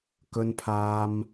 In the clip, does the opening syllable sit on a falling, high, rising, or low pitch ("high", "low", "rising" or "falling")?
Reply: low